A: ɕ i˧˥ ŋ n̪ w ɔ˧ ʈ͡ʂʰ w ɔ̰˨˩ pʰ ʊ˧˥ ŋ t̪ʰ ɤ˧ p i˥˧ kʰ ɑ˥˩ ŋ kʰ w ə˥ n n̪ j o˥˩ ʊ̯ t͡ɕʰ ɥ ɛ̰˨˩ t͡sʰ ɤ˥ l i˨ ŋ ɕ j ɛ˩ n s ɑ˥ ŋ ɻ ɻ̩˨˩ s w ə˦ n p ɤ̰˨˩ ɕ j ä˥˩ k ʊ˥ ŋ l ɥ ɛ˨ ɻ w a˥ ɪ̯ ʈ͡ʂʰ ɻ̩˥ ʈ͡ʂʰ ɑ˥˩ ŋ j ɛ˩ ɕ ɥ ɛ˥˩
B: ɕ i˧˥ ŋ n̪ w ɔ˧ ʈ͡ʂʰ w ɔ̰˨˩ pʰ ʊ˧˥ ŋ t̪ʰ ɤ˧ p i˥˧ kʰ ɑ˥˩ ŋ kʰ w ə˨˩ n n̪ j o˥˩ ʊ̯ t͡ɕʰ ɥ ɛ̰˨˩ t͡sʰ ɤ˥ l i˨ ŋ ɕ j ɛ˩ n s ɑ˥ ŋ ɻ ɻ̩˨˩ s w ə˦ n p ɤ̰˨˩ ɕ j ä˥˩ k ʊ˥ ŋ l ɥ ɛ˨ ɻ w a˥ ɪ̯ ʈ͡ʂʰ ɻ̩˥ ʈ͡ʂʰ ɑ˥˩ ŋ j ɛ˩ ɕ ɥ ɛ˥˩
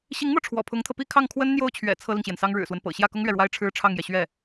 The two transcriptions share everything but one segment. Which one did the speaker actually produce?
A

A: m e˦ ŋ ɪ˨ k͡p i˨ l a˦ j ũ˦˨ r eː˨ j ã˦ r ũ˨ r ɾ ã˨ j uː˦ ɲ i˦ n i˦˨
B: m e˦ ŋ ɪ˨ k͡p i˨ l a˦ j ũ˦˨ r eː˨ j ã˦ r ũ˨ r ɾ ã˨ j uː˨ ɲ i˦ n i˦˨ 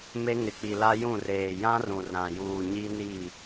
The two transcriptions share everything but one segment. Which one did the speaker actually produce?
B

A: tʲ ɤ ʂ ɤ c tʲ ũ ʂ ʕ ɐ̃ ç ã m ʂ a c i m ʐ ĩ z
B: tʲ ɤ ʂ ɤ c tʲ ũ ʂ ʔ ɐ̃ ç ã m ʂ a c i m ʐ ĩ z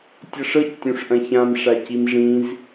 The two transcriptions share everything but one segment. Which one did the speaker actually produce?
B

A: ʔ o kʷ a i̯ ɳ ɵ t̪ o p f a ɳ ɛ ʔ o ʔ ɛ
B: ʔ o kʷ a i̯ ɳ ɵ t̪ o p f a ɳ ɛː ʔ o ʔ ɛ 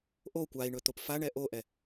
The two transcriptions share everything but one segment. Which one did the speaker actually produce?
A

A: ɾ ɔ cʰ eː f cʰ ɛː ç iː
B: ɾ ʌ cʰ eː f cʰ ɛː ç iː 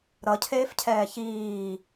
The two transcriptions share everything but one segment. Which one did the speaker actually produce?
B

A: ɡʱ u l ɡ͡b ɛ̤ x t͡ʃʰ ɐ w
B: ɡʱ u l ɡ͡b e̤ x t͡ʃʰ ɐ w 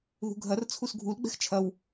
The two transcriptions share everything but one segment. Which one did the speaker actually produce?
A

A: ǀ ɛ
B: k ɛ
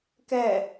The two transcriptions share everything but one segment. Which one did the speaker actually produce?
B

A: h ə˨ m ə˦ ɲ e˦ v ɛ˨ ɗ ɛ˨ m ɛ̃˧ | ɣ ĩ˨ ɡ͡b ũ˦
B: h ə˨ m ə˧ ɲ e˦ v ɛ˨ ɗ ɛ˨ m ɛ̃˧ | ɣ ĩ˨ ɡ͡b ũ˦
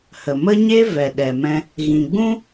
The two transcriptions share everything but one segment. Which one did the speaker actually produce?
A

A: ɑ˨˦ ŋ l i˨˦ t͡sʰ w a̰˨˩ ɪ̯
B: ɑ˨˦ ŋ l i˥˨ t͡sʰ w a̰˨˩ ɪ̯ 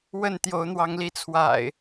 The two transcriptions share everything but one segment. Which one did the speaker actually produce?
A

